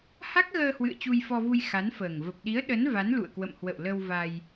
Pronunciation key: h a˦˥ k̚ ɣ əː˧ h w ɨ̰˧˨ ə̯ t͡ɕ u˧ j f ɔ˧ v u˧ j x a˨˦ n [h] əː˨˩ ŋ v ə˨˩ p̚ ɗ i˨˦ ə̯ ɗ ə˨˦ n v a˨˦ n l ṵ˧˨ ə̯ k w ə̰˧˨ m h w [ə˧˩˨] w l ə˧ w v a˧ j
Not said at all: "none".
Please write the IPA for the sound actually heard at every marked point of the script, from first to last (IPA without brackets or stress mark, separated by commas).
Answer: f, ə̰˧˨